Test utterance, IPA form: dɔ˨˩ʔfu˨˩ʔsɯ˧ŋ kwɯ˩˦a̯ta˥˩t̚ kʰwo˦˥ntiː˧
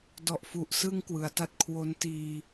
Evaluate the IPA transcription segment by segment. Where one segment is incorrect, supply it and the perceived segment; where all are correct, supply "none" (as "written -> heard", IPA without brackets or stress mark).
none